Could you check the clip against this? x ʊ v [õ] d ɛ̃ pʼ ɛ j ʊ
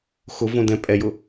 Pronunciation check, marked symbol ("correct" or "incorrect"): correct